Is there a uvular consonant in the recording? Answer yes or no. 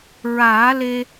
no